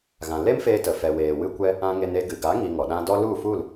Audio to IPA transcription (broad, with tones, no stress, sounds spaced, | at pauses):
ɣ ã˨ l e˦ m f eː˧ t ə˨ f ɛ˨ w eː˨ w ɨ˧ kʷ ɛ˧ | ã˧ ŋ e˧ n e˧ ɡ ɨ˨ ɡ a˨˦ ŋ i˧ ŋ ɔ˨ ɗ ã˦ d ɔ˦ l u˦˨ f u˦˨ l